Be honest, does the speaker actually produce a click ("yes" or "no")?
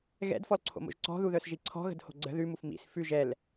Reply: yes